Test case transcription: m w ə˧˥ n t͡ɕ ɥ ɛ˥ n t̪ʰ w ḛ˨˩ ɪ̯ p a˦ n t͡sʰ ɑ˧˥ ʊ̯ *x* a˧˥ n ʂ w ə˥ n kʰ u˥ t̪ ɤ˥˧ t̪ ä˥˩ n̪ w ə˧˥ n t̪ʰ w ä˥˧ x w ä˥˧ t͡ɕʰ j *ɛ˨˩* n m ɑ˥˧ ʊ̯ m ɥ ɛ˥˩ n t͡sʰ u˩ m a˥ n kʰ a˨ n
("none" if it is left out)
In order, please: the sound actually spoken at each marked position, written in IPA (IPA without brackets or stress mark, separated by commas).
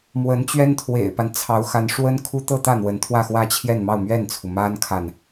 x, ɛ˥˧